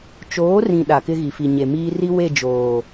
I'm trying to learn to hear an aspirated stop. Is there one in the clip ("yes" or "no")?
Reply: no